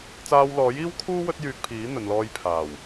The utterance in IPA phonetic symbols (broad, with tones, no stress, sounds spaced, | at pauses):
t͡s aː˧ w l ɔː˨˥ j iː˥ w kʰ uː˥ w ɵ˥ t̚ j yː˧ k̚ pʰ iː˨˥ n̪ ɵ˨ n l ɔː˧ j pʰ aː˨˩ w